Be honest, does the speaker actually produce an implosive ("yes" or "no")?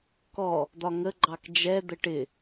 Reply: no